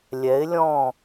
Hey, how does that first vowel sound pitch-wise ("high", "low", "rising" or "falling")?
rising